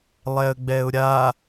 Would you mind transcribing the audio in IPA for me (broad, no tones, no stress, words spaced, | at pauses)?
lˠɛə̯ɡ͡bɛʊ̯ɾʲa